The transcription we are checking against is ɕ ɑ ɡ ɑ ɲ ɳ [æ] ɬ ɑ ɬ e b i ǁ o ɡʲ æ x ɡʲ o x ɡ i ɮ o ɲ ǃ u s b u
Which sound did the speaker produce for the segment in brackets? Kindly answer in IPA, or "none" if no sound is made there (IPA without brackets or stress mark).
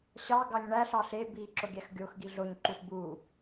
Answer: æ